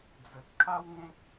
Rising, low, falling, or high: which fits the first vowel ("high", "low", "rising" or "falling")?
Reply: low